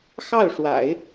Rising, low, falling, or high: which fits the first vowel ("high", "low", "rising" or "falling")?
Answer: falling